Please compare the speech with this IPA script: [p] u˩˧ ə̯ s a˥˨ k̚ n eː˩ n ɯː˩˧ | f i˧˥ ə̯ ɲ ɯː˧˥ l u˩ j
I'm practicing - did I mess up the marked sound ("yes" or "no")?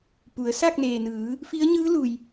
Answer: no